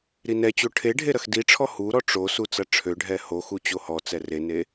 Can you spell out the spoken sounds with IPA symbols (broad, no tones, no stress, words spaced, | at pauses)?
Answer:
ɾinɛt͡ɕo ʈʰeɖʱe ɾɐxdiʈ͡ʂʰɔ huɾɔ ʈ͡ʂosu t͡sɐʈ͡ʂʰøɖʱɛ hoxu t͡ɕohɔt͡sɛ rene